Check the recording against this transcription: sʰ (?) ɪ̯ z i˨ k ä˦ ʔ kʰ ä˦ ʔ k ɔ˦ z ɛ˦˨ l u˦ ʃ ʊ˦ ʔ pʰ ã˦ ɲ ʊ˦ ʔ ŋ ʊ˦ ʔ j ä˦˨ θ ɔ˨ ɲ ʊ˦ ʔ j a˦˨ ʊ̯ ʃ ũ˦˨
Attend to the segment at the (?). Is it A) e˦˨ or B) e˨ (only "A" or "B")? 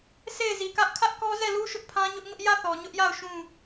A